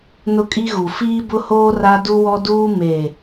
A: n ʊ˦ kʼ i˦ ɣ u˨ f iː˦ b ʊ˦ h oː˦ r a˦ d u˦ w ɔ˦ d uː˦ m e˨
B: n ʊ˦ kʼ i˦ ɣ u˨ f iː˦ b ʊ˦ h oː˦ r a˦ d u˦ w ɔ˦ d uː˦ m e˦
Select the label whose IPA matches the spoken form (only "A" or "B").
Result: A